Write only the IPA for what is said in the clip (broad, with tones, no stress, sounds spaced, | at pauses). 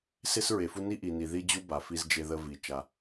s e˦ s ɹ e˨ f u˦ n i˦ ʔ i˨ n i˨ ð i˦ d͡ʑ u˦ b a˨ f i˦ z d͡ʒ e˦ ð ə˦ v i˨ t͡ʃ a˦